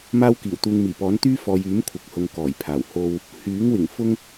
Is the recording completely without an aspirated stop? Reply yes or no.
no